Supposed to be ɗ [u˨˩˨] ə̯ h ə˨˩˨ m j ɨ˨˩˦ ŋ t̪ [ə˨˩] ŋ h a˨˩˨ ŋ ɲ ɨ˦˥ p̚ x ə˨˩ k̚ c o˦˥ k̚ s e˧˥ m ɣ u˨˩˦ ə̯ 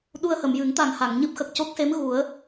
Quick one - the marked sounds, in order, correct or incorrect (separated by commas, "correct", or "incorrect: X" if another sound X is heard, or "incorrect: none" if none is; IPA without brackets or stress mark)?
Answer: incorrect: u˧, incorrect: a˨˩